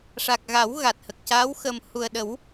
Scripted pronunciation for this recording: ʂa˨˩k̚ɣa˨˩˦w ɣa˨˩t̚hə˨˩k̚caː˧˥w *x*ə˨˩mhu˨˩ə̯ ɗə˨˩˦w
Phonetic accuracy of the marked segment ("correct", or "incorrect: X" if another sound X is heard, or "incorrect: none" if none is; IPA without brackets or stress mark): correct